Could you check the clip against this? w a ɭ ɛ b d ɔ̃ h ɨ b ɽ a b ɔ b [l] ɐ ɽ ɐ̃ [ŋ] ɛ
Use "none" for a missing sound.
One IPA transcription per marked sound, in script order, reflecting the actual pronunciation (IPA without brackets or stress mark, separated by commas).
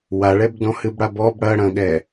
ɽ, ɠ